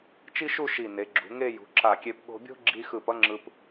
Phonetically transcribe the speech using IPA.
t͡ʃi˥ʃu˥˧ ʃi˧˩ ne˩˧ɡ͡ǁṳ˩˧ ŋe˥˧jṳ˩˧ ǁa˧˩kʲe˧p ɠo̤˧bʲo̤˥ɡ͡ǁi˧xɯ˧˩p ʌ˥ŋ͡ǁɯ˧p

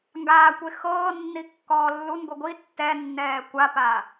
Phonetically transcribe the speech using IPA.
ŋɡaːkʷe xɤːnːi kːɔːlːunɡʷi ɡʷi tːɛnːɛː kʷapa

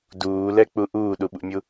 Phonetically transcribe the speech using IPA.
duːlɛk͡pu ʔuːɗuɓṵmʲu

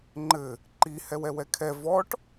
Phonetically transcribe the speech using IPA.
ŋ͡ǃɘ | ǃi hɛwɛwɛkʰɛ vɔʈ

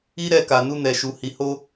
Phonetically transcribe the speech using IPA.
i˦ɾɛ˧ka˨ nu˧nɛ˨ʃu˨ hi˨ho˧

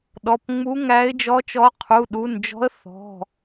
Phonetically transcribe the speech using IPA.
ɗɔ˩˧˩pŋ͡mu˧˥ ŋæ˧˥ɪ̯d͡ʒɔ˧˥t͡ʃɔ˧˥ qʰu˩˧˩ɗu˩˧˩nd͡ʒɔ̤˧˥ə̯ θɔ̤˩˧˩

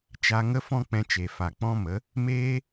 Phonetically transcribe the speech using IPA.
t͡ʃa˧ ŋə˦fɔ̃˦k͡pɛ̃˧t͡ʃe˨ fa˨k͡pɔ̃˦mə˨˦ | meː˦

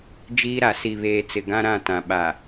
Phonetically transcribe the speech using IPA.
d͡ʒiː˦ɾa˨ si˨ βeː˨t͡sɪ˨ ɡã˦ɾã˦˨ tã˨ɓa˨

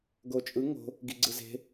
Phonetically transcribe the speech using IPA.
ɡot͡ʃʼɯ ŋo̤ | ɡiɡ͡ǀɯze̤

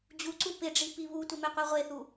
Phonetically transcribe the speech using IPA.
d͡ʑuǀu pɪɖ͡ʐi piβutʷɪ meqʷiʁʷeθu

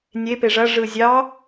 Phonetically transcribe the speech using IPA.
nʲepe ʐɐʐɯ zʲɑ

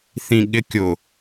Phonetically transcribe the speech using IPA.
θĩɠɪkʲʊ

